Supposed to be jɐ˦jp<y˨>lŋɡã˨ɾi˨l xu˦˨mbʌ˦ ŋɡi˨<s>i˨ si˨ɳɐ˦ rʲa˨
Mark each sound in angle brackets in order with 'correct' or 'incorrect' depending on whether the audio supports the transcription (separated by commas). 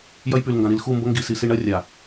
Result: correct, correct